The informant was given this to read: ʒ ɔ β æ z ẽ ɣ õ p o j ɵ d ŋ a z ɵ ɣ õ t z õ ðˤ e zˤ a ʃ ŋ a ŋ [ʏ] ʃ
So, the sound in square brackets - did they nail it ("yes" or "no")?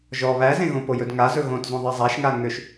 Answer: yes